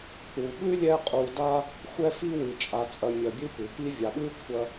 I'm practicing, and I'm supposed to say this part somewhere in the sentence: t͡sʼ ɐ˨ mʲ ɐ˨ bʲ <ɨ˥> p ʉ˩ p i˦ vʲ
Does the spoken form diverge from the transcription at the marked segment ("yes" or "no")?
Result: yes